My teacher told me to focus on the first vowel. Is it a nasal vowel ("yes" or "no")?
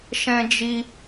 yes